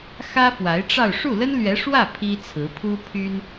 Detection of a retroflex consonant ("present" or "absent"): present